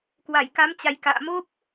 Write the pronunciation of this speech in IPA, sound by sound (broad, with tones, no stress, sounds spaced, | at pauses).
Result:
k w a˧˩ j k a˨˦ m t͡ɕ a˨˩ j k a̰ː˧˨ m o˦˥ p̚